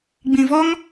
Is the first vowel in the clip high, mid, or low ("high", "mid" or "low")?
high